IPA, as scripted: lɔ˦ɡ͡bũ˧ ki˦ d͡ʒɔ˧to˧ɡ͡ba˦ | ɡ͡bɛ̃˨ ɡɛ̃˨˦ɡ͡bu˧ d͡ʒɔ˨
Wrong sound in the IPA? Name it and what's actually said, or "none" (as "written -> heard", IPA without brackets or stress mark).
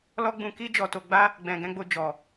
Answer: u˧ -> o˧